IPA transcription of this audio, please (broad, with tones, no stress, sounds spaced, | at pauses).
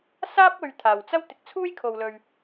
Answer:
s aː˥ p̚ ɵ˨ ɥ t̪ʰ aː˨˩ w t͡s ɐ˥ w t̪ ɪ˨˥ k̚ t͡sʰ uː˥ j kʰ o˨ w l ɵ˨ ɥ